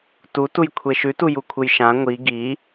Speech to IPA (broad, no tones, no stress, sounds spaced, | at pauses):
t u t u j kʷʰ e ʃ ʉ t u j u kʷʰ ɨ j ʃ ã ŋʷ i ɡ i